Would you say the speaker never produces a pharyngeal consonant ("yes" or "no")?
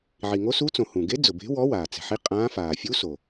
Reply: no